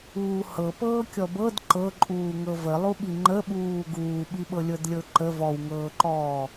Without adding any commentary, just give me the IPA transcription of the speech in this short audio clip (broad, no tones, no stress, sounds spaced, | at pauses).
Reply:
uː h ɤ p ɤː kʲ ɔ b ɤ d ǃ ɤ ǃʼ uː ŋ ɤ v ə lˠ u ɓ i ŋ͡ǃ ə ɓ uː ɡ uː ɓ i ɓ ɤ lʲ ɤ d lʲ ɤ ǃ ə v ɔ w ŋ ɤː ǃ ɔː